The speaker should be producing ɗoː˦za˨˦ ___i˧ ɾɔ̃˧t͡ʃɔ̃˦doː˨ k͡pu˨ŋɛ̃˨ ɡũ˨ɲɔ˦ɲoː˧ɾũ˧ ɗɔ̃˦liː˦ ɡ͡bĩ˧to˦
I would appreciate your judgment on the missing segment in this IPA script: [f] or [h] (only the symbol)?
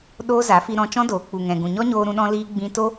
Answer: f